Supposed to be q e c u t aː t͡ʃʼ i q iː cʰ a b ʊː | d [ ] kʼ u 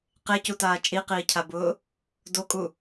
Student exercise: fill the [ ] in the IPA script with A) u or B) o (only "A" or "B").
B